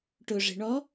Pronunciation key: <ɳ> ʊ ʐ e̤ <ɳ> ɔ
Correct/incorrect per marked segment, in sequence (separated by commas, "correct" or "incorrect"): incorrect, correct